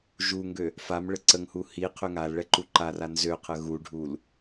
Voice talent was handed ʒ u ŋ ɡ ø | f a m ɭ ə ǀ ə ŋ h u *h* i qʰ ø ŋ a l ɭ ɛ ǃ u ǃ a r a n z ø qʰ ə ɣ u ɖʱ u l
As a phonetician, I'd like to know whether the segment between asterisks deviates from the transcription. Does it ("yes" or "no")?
no